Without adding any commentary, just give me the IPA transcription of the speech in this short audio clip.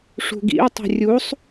ʂ ṳ ɡ ḭ ʊ̯ tˤ e̤ rʲ u sˤ

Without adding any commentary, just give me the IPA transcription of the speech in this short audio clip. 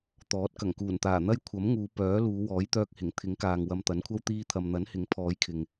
t̪ ɔː˨˥ t̚ k ɐ˨˩ ŋ k uː˨˩ n t̪ aː˨˩ n̪ ɐ˥ j kʷʰ ɐ˨˥ m ŋ uː˨˧ p œː˨˥ l uː˨˧ w ɔː˨˥ j t̪ œː˧ k̚ h ɪ˨˩ ŋ t̪ʰ ɪ˨˥ ŋ k aː˨ ŋ w ɐ˧ m t̪ ɐ˨˥ n kʷʰ ɐ˥ w t̪ iː˧ t̪ʰ ɐ˨ m n̪ ɐ˨˥ n h ɪ˨˥ ŋ pʰ ɔː˨˧ j kʰ ɪ˨ ŋ

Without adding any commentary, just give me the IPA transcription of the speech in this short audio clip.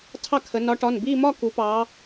tʰ ɑ˥˧ kʰ ə˨˦ n ɒ˨˦ ʈ ɒ˩˧˩ n b i˥˧ m ɒ˥˧ k u˨˦ p ɑ˨˦

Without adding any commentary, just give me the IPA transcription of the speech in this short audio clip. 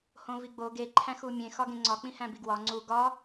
h õ v i ɡ͡b o ɡ e ǃʰ æ̃ x u mʲ ẽ x ɒ ɡ ẽ ŋ͡ǀ ɒ k͡p ĩ h æ̃ b i ɡ w ɒ ŋ͡ǀ u ɡ ɒ

